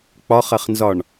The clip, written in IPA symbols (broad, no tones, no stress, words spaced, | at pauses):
k͡pɒχɐχnzɒɳ